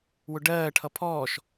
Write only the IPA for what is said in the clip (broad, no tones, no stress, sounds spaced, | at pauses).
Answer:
w ʊ ɖ ɜː ʈʰ ʌ pʰ ɔː ʃ